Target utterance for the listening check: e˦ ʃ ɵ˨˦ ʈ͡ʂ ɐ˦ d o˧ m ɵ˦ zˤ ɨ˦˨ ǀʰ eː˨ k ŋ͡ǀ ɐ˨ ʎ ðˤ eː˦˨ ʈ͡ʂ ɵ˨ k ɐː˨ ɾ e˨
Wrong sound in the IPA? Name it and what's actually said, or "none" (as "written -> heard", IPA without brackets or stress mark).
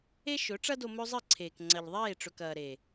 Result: none